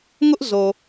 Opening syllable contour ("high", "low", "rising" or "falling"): high